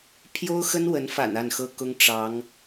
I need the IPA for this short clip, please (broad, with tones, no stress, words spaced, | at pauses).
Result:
pʰjo˥ʊ̯xə˥nwə˧˥nfa̰˨˩n a˥˩nxɤ˥ kʊ˥ŋ ʈ͡ʂɑ˧˥ŋ